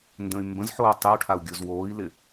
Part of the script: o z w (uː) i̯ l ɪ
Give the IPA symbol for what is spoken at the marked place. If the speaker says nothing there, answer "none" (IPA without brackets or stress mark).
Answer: oː